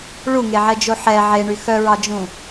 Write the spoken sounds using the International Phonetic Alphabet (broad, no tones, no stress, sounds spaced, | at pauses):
ɭ u ŋ e ʕ ɛ d͡ʒ o ħ ɛ ʕ e ɳ y x œ ɹ ɑ d͡ʒ ũ